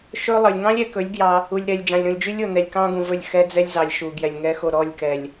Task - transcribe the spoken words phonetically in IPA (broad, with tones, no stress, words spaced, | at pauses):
ʃɵ˦lˠə˨lʲ ŋɑ̃˦lʲɛ˨kɵ˨˦lʲ ɡjɑ˦ | u˨lʲɾɛ˨lʲ d͡ʒɑ̃˨lʲɾũ˨lʲd͡ʒy˦lʲo˨ nɛ˨lʲkɑ̃˦ɡũ˨vɵ˦˨lʲ xɛ˦d͡zɛ˦lʲzɑ˨lʲ ʃu˨ɡjɛ˨lʲ ŋɛ˦xo˦˨ ɾɔ˦˨lʲkɛ˨lʲ